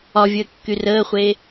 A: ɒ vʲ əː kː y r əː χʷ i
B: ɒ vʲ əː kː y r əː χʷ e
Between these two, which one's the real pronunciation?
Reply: B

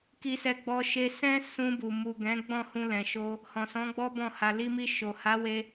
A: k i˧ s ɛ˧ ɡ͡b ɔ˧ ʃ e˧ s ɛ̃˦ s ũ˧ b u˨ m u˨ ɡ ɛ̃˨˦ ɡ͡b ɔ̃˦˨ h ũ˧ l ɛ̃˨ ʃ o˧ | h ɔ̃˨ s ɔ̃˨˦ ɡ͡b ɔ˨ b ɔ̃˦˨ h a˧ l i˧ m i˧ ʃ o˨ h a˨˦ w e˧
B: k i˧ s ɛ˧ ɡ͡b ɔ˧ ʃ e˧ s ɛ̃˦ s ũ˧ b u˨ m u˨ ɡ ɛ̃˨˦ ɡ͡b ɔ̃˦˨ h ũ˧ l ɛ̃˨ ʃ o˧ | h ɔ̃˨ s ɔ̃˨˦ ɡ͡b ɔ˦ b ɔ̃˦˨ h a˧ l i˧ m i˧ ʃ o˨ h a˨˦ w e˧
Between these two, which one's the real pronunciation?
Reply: B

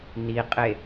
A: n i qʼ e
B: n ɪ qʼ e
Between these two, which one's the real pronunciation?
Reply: A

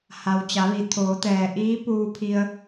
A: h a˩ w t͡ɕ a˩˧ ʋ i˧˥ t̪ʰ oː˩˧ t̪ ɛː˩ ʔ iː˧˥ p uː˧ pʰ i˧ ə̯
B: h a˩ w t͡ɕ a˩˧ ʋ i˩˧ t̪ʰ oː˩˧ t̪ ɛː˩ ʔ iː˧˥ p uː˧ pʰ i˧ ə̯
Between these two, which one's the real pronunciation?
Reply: B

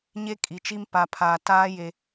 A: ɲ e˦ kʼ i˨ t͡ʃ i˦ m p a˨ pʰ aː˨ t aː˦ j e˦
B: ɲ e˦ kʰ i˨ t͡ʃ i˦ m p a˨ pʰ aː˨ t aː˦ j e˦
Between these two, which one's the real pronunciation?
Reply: A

